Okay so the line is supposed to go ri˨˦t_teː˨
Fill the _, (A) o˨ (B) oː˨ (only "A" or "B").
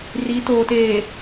B